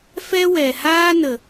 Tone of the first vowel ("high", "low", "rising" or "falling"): high